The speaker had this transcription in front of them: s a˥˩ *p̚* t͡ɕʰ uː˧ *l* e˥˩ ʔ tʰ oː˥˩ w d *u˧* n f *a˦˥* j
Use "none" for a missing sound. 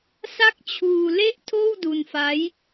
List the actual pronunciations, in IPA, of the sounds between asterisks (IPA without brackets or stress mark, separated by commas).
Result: k̚, l, u˧, a˦˥